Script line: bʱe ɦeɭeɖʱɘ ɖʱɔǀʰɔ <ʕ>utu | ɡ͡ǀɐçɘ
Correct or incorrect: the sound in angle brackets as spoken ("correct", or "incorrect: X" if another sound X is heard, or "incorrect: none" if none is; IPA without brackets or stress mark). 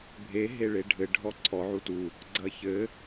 correct